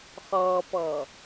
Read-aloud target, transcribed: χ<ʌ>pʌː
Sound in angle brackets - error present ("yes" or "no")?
yes